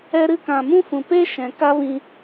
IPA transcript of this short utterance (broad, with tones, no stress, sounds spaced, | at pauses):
ɛ˧ ɾ ɨ˧ k ã˨ m ũ˦ f ũ˨ p e˦ ʃ ɛ̃˨ k a˦ v ĩ˧